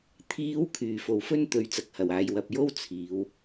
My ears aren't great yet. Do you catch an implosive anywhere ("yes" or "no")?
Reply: no